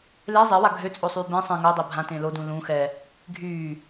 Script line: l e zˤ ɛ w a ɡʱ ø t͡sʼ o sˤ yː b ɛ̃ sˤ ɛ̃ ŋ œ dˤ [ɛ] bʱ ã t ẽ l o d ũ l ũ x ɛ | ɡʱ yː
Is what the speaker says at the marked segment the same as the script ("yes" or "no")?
yes